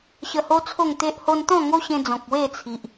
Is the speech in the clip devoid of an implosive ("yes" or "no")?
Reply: yes